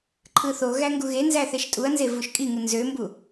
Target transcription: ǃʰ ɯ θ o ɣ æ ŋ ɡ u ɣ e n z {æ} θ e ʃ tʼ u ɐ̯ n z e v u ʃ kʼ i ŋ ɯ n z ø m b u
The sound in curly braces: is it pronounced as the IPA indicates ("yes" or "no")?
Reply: yes